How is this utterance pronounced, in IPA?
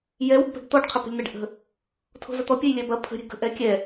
jɛwə̤ɡpɛ̤ɡ t̪ɔɖ qʰəpə̤lʲn̪ɛɖ ʔə̤ | tʰo̤zɐt̪ɔ pʲɛjlʲɛbɐ pʰə̤ɾʲɛ̤ ɡə̤ ʔɛkʲɛ

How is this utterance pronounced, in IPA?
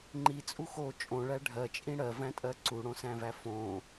ŋ͡ǃit͡sʼu xo t͡ʃʼõɭæ ɖʱɜt͡ʃʼĩ ɽɜvæ̃tʼɜ ǀuɽõsæ̃væ fõ

